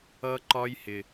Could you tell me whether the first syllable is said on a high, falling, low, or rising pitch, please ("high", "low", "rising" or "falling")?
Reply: high